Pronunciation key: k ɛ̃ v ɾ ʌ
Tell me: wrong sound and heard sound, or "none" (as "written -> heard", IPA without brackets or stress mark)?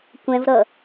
k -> kʷ